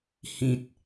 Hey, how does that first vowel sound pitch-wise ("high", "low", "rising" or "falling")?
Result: low